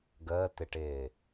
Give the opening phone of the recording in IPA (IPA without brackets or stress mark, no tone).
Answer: ɡ